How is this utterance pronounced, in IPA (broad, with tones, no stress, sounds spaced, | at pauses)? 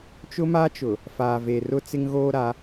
t͡ʃ ʊ˦ m a˦ t͡ʃ ʊ˨ | f aː˨ v e˨ r ʊ˦ t͡s ɪ˦ ŋ ɣ oː˦ ɾ a˨˦